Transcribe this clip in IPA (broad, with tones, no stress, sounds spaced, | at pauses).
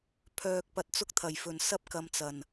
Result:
pʰ œː˧ k̚ p ɐ˧ t̚ t͡s ʊ˥ k̚ t̪ʰ ɐ˨˩ j f ɵ˨˩ n s ɐ˥ p̚ k ɐ˧ m t͡s ɐ˨˩ n